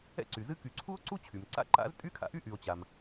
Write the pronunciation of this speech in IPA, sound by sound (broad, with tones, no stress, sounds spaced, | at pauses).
ɛ̰˦ ǀ y˩ z ɨ˦ k y˨ ǀʰ u˥ o̯ ǀ u˥ t͡ɕʰ y˩ m ǀ a̰˥ ǃ a̰˥ z tʼ y˥ kʰ a̰˦ ʔ y˥ ʔ y˨ o̯ t͡ɕ a˩ m